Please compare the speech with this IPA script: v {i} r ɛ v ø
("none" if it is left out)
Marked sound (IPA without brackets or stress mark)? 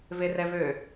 e